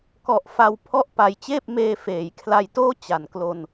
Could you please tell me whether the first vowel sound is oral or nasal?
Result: oral